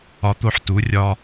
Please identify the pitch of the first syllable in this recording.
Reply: rising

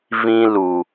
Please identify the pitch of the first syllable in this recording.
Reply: high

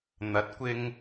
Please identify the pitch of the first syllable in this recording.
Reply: rising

